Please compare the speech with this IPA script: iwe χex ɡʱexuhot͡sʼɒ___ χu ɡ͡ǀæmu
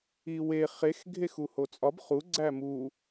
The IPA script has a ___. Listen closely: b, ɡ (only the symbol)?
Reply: b